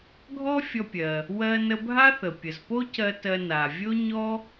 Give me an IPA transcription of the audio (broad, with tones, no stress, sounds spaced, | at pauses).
ɡʱ ɔ˥ fʲ ɔ˧ pʲ ɜ˩ | w ɜ˧ n ə˧ bʱ a˥ θ ə˩ pʲ ə˩ z p o˥ c ɜ˧ t ɜ˧ n a˩ vʲ o˥ ɲ ɔ˥